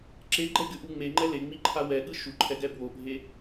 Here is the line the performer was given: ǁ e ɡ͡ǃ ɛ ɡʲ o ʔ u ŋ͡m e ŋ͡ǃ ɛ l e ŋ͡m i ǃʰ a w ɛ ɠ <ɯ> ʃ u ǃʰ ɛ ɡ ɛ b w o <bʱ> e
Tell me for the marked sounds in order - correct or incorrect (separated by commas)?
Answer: correct, correct